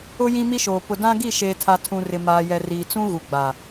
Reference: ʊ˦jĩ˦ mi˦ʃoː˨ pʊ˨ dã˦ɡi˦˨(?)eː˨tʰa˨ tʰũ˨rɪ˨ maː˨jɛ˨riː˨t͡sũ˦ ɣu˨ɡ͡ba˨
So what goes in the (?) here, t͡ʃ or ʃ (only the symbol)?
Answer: ʃ